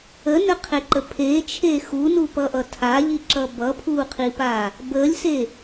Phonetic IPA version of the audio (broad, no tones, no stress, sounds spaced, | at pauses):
ə n ə qʰ e ǃ ə pʰ e t͡ʃʰ e x u n u p ʌ ʔ ʌ tʰ a ʎ i ǁ ʌ b ʌ pʰ u qʰ i p a | b ə lʲ s e